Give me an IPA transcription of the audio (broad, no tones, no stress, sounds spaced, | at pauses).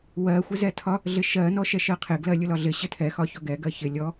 w ɜ xʷ ɪ z ɛ tʰ ɒ | ɮ ɪ ʃ ɜ n ɔ ʃ ɛ ʃ ɜ qʰ ɪ ɡ l ɜ lʲ ʊ l ɒ ɮ ɪ ɕ ɪ tʰ ɛ x ɒ ç ɔ ɡ ɛ ɡ ɜ ç ɪ lʲ ɔ